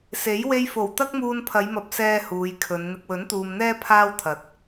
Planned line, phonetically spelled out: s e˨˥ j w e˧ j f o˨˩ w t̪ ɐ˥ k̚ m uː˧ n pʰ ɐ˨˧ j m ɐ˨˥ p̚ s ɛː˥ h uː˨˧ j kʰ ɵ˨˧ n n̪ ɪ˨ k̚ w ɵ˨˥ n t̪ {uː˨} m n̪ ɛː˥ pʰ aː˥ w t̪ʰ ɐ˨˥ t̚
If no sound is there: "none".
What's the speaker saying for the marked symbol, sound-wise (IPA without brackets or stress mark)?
uː˨